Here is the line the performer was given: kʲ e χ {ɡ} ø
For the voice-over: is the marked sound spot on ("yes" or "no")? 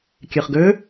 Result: yes